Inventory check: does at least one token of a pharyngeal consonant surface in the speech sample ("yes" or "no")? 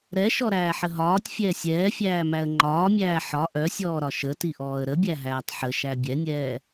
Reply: yes